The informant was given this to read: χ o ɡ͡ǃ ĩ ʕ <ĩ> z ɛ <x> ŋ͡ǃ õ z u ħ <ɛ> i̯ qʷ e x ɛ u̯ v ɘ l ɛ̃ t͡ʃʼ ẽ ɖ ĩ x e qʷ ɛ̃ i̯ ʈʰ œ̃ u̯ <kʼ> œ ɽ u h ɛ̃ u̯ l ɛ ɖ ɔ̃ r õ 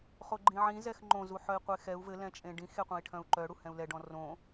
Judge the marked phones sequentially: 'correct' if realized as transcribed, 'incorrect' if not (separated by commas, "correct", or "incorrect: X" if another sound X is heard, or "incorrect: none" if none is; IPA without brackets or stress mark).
correct, correct, incorrect: œ, incorrect: ǃ